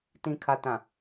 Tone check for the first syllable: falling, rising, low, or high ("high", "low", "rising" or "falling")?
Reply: low